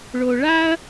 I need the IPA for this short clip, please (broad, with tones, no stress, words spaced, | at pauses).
ɭo˨ɭa˥ɐ̯